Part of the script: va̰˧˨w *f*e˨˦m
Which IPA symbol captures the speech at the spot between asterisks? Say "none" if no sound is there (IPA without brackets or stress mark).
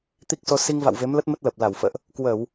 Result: v